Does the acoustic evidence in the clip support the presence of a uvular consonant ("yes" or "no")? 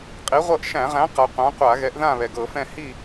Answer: yes